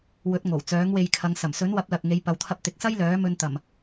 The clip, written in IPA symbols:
wɵ˨˥t̚ ŋo˨˩w t͡sœː˨˥ŋwe˧jkʰɐ˨˧ŋ sɐ˨˩msɵ˨˥nwɐ˨˥p̚lɐ˨k̚ ŋe˨˧jpɐ˨wt̪ʰɐ˧p̚ t̪ɪ˨k̚sɐ˥j lœː˨˥mɵ˧nt̪ɐ˨˩m

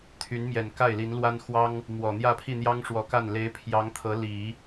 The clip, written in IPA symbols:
t̪ʰy˧˥nmjɛ˨˩n ka˥˩ɪ̯li˧˥nlwa˥nxwɑ˥ŋ | mwɔ˨˩ n̪jä˥˧pʰi˥˩n̪jɑ˥ŋ ʂwɔ˧˥ka˥˩n le˧˥ɪ̯pʰjɑ˧˥ŋ t̪ʰɤ˧˥li˨˩˦

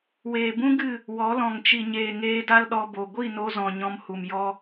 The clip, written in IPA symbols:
weː˨bũ˦ɡɨ˦˨ | wɔ˨˦lɔ̃˨ŋ t͡ʃi˨ɲeː˨ ŋeː˧da˦lɗɔ˧ bo˨ ɡʷi˦˨no˧zɔ̃˨ ɲɔ̃˧mhu˨m jɔ˦

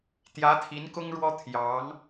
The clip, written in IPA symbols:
t̪jä˧˥t̪ʰi˧˥n kʊ˥ŋɻwɔ˥ t̪ʰjɑ˧˥ŋ

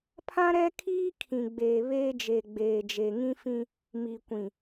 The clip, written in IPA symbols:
pʰã˦ɾɛ˦ kʰiː˦kʰĩ˨ɡ͡beː˨ βeː˦d͡ʒe˨ɡ͡beː˨ d͡ʒe˨ŋĩ˦fĩ˦ | mi˨kʷĩ˨

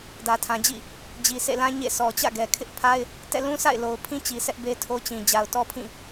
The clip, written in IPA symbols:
dä˨tʰã˨d͡ʑḭ˦˨ | d͡ʑi˨sʰḛ˦˨lã˦ ɲḛ˦˨ sɔ˨t͡ɕä̰˦˨ɡɛ˨ kʰɪ˦ʔpʰa˦ɪ̯ | tɛ̰˦˨lũ˦sʰa̰˦˨ɪ̯lo˨ʊ̯ pʰĩ˦t͡ɕi˨ sɛ˦ʔbe˦tʰo˦t͡ɕĩ˨ d͡ʑa˨ʊ̯tɔ˦pʰĩ˦˨

